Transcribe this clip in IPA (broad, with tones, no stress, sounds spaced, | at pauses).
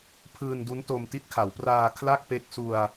pʰ ɯː˧ n d u˦˥ n t o˧ m t i˦˥ t̚ kʰ a˩˦ w p r aː˧ kʰ l a˥˩ k̚ p e˦˥ k̚ s u˧ a̯